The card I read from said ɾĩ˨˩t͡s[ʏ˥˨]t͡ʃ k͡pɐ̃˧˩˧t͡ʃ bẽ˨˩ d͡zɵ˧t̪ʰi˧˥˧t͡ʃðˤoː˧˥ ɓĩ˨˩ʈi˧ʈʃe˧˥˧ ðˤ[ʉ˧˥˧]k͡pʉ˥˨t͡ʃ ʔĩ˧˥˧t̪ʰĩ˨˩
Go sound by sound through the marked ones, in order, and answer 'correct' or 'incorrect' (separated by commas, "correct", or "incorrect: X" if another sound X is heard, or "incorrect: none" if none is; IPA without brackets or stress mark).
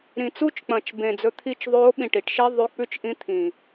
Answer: incorrect: u˥˨, correct